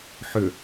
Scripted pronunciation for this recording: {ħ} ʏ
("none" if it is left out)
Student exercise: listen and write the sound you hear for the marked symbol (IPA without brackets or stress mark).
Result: ħ